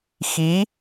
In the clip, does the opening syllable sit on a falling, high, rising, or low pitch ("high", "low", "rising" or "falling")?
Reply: rising